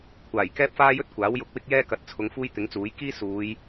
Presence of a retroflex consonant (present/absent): absent